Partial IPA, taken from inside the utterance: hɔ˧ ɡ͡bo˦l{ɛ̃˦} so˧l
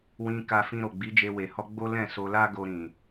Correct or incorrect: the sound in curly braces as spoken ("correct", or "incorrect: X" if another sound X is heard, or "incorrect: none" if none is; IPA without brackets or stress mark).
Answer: incorrect: ɛ̃˦˨